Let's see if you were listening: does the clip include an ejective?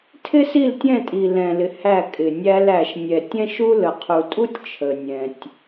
yes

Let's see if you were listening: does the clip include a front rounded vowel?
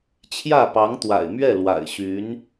yes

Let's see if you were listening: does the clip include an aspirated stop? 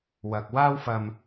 no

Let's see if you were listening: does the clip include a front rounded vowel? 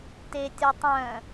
yes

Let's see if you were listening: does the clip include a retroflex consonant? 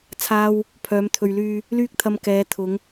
no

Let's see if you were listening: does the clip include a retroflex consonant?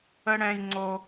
yes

